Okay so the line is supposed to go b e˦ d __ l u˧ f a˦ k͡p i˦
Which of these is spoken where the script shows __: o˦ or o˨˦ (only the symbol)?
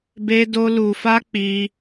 o˦